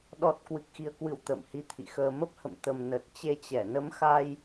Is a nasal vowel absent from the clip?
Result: yes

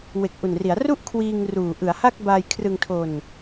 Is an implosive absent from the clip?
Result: yes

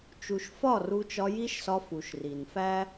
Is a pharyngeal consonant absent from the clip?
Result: yes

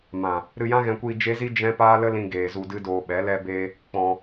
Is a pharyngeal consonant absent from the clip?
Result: yes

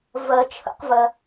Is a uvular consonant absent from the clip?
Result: no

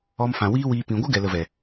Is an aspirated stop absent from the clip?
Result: yes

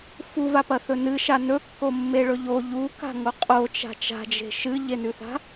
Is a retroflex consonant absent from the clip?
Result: no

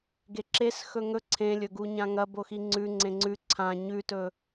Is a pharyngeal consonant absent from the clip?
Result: yes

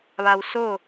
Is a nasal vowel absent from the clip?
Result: yes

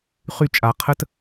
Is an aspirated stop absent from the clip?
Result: no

